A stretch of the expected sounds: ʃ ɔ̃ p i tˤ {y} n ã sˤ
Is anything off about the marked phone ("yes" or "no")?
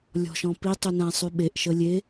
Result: no